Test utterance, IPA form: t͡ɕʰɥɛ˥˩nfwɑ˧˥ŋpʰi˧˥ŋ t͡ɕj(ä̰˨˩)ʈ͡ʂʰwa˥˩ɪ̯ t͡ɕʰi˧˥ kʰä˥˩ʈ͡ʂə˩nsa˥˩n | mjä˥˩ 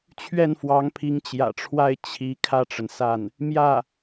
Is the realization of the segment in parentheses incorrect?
no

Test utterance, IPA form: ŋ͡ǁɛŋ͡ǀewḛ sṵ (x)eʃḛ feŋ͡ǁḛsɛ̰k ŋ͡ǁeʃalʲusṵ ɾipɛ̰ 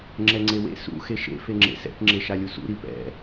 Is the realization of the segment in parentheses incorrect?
no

